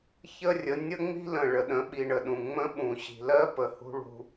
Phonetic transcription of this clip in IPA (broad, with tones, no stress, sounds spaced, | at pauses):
ç ə˦ rʲ ə˨˦ nʲ ə˦ ŋ͡m i̤˦ l ə̃˨ ɭ ə˨ ɗ ə̃˨˦ ɓ i˨ ɳ ə˨ ɗ ũ˨ ŋ͡m ə̃˦ ɓ ũ˨ ɕ i̤˨ l ɜ˦ p ə˨ h ṳ˦ ɭ ṳ˦